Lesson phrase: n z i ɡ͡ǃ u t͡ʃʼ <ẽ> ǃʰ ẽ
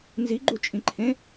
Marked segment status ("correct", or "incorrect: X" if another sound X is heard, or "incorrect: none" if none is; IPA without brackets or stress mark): incorrect: ĩ